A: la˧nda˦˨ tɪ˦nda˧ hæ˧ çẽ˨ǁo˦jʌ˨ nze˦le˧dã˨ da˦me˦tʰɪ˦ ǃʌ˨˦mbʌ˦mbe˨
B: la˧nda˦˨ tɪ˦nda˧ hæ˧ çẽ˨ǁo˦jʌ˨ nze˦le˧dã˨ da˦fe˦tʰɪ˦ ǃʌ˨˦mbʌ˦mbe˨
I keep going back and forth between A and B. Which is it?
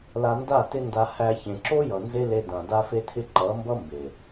B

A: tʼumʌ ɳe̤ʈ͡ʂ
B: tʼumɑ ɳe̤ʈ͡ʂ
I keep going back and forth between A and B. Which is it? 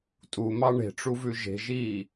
B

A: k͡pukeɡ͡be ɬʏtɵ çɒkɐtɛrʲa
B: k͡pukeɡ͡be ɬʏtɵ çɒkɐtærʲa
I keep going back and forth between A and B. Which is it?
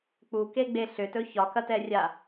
A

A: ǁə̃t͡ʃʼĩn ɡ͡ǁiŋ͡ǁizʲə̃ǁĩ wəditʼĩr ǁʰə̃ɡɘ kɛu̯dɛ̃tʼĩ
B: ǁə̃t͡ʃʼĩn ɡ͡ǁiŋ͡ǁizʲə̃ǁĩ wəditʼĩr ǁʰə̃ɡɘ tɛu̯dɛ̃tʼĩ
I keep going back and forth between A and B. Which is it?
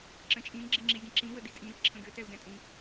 B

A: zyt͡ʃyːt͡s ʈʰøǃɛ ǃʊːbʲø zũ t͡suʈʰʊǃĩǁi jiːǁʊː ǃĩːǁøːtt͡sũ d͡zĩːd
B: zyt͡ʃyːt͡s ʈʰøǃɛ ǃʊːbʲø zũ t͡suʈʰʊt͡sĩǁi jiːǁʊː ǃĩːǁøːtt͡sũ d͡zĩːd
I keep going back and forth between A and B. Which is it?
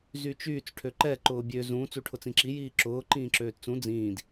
B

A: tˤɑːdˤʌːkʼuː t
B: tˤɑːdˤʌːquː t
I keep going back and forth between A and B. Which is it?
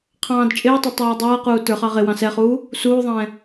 B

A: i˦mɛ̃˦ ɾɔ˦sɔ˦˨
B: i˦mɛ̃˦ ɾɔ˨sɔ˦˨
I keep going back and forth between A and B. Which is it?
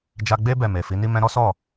A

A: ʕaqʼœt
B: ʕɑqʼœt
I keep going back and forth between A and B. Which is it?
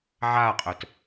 A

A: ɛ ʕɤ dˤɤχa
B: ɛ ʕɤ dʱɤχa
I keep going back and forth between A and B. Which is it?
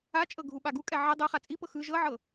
A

